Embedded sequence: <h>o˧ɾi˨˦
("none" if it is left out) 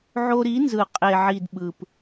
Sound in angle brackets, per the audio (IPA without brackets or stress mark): ʕ